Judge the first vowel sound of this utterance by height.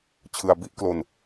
high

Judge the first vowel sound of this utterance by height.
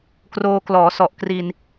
mid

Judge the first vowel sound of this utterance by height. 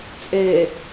mid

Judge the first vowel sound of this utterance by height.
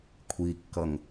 high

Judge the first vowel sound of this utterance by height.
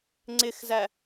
high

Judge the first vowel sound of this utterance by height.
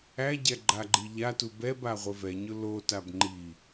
low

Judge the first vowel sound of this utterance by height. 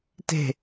mid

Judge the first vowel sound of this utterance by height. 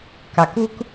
low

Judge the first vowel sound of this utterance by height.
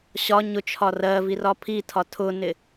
low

